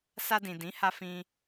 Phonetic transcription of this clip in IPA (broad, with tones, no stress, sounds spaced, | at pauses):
s a˧ d ĩ˨ d ĩ˨˦ h a˧ f ĩ˧